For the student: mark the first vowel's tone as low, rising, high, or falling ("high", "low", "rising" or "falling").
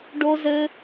high